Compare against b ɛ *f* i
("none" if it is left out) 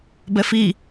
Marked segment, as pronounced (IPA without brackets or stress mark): f